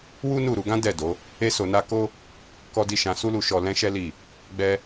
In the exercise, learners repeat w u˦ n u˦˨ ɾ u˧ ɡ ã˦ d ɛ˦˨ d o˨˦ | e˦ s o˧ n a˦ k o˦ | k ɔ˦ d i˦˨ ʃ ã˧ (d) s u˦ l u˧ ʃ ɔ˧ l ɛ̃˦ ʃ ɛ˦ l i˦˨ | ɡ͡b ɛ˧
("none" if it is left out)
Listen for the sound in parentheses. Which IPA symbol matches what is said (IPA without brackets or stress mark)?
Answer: none